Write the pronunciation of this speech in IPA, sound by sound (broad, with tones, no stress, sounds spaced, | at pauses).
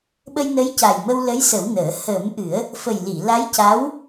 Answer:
ɓ ə˧ j n ə˧˥ j c a˨˩ j m ə˧ w l ə˧˥ j s ə˨˩˦ w n əː˨˩˦ h əː˨˩˦ m ʔ ɨ˨˩˦ ə̯ | f ə˨˩ j l i˨˩˨ l a˧˥ j c a˧˥ w